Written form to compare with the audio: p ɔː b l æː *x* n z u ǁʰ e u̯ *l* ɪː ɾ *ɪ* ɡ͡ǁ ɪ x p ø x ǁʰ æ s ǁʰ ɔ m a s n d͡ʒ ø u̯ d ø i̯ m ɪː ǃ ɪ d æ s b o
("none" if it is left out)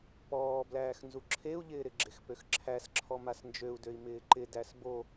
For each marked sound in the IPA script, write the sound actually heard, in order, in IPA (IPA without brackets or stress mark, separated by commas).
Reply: x, ʎ, ɪ